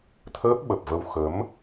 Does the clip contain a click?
no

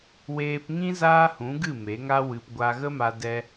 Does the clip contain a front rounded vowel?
no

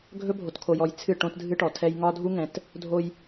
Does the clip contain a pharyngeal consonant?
no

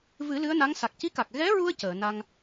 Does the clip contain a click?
no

